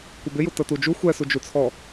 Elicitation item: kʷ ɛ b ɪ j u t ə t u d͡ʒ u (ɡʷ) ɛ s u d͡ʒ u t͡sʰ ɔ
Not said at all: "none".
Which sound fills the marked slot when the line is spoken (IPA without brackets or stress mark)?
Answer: xʷ